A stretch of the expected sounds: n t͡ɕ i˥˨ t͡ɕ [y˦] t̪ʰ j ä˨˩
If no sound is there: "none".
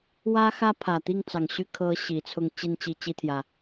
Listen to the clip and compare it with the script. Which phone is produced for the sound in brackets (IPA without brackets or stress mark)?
i˦